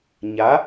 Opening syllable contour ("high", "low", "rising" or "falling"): rising